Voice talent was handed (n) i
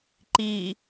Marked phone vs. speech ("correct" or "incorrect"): incorrect